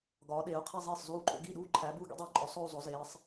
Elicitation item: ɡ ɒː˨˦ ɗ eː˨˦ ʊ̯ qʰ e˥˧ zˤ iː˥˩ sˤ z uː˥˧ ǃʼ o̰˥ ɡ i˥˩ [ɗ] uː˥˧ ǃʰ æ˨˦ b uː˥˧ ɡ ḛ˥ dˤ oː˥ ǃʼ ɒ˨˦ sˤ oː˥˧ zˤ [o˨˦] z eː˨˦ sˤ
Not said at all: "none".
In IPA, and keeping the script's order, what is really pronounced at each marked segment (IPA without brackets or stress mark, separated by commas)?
ɗ, o˨˦